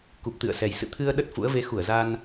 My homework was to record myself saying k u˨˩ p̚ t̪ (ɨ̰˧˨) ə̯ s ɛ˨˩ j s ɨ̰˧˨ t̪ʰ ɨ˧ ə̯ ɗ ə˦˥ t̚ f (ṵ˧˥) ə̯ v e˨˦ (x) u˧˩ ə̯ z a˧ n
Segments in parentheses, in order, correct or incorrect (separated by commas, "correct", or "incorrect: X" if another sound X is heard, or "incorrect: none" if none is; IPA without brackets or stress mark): correct, correct, correct